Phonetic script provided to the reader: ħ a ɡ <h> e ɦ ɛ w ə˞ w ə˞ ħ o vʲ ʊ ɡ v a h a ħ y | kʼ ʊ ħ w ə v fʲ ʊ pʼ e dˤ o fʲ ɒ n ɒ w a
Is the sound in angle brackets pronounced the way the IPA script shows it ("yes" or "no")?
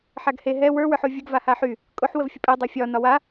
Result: yes